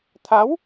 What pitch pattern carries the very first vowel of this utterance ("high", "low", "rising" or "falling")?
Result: rising